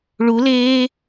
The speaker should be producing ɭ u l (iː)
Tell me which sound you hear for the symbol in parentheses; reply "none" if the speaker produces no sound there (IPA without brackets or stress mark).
eː